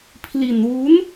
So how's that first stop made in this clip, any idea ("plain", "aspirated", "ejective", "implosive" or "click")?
aspirated